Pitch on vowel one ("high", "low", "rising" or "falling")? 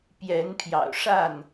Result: rising